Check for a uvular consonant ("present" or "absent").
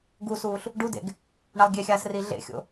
absent